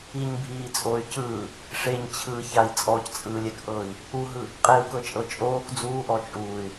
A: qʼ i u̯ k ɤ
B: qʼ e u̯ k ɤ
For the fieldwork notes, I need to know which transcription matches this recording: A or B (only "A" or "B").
B